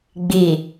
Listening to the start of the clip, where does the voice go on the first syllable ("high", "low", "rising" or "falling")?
low